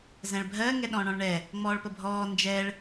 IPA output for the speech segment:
z ɛ̃ ɭ bʱ ɜ ŋ ɛ ɗ ɔ̃ ɳ ɔ̃ ɭ ɳ ɛ | ŋ͡m ɔː ɭ p ə bʱ ɔː n d͡ʒ ɛ ɭ

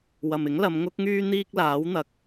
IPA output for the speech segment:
w ɐ˨ m ɪ˨˥ ŋ l ɐ˨˧ m ŋ ʊ˥ k̚ ŋ yː˥ n̪ iː˥ k̚ l aː˨˥ w n̪ ɐ˨˥ k̚

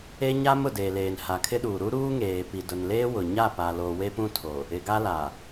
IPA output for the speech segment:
e˦ ɲ a˦ m ʊ˨ d eː˨ l eː˨ n h a˨ kʰ ɪ˦ ɗ uː˨ ɾ u˦ ɾ uː˦ ŋ eː˨ p i˨ d ʊ˨ n l eː˦ w ʊ˨ ɲ a˦˨ p a˨ l o˨ w e˦ p ũ˦ tʰ o˨ | ɪ˨ ɡ a˦ l a˨

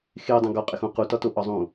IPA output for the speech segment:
x e dˤ õ ɡ ɒ qʼ e x ũ q u t ɒ t o ʔ ɒ zˤ ũ

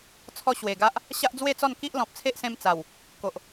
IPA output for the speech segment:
t͡sʰ ɔ˧ ɕ w e˨˩ ɡ a˦ ʔ | ɕ a˦ ʔ d͡z w e˥˧ t͡s ɔ˥˧ n k i˦ ʔ l ɔ̃˨ p̚ t͡sʰ e˦ ʔ s ẽ˧ m t͡s a˨˩ w | k o˨ ʔ

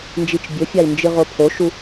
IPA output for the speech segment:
n d͡ʒ i t͡ʃ bʲ ɵ fʲ a i̯ n d͡ʒ ɨ ʁ o pʰ o ʃ u

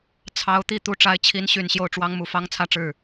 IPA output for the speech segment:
t͡sʰ ɑ˧˥ ʊ̯ t̪ i˥˩ t̪ u˧˥ ʈ͡ʂ a˧˥ ɪ̯ t͡ɕʰ i˧˥ n ɕ y˨˩ n ɕ j o˥˩ ʊ̯ ʈ͡ʂ w ɑ˥ ŋ m u˧˥ f ɑ˥ ŋ t͡sʰ ä˥˧ ʈ͡ʂ ɻ̩˥˩

